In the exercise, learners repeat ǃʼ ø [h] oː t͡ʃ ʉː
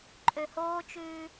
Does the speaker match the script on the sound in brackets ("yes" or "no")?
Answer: yes